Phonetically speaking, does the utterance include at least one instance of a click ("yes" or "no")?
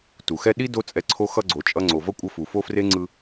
yes